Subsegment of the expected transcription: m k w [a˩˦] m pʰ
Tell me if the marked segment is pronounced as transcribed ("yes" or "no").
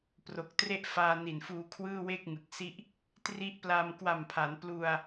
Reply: no